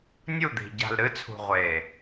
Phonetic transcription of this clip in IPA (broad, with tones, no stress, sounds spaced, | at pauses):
nʲ u˦˨ d̪ i̤˨ ɟ a̤˨ l ɾ ɨ˦ t͡sʰ ṳ˨ ʁʷ e˨